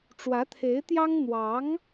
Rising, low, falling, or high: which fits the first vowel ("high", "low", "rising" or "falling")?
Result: rising